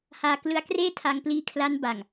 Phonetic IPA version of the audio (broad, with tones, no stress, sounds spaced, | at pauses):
h aː˧ k l ɯ˦˥ a̯ k r eː˥˩ tʰ a˧ ŋ p l iː˦˥ kʰ l a˦˥ n b a˨˩ ŋ